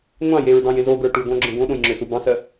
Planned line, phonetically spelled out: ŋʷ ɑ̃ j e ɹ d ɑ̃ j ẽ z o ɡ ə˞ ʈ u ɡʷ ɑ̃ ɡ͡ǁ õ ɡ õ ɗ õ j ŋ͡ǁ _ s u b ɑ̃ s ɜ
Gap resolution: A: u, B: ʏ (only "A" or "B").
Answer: B